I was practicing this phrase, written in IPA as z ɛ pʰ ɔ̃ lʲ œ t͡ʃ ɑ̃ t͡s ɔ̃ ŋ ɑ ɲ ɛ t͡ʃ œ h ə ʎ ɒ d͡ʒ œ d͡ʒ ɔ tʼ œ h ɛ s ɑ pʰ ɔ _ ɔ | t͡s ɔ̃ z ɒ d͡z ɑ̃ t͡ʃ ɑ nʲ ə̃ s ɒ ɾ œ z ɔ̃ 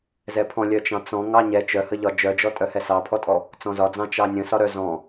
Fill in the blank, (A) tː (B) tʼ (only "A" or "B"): B